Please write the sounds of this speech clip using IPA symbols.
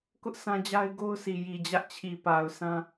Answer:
kʊ˦ʔ sʰã˦d͡ʑa˦ɪ̯ɡo˦ʊ̯ sʰi˨ji˨d͡ʑä˦ʔt͡ɕʰi˨ pa˨ʊ̯sʰã˦

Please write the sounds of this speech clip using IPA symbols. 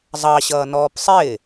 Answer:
zˤɑɕʌːnɔːp sˤɪː

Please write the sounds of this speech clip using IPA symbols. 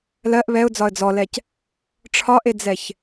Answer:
lɜʔ βɛʊ̯d͡zɒə̯ d͡zɔlɛc | ʈ͡ʂʰɒʔed͡zɛç

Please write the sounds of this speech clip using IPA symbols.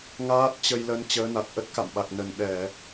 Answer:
ŋaː˦˥t̚ t͡ɕə˧jlə˧n t͡ɕəː˨˦na˨˩t̚ ʔə˦˥t̚ka̰˧˨mɓa˨˩k̚ nə˨˩n ɗɛ˧˩˨

